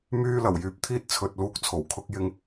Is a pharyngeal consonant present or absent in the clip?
absent